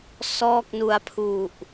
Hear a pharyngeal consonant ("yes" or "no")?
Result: no